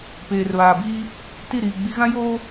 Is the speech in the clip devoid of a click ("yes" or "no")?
yes